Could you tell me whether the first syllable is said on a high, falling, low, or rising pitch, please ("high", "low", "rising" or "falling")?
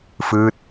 falling